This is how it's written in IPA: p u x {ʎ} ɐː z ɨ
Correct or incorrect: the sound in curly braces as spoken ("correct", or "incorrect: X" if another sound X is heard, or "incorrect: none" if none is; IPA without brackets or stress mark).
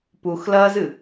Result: incorrect: l